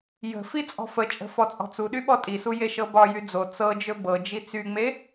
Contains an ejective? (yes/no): yes